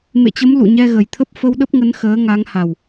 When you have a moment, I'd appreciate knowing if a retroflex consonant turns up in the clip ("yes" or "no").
no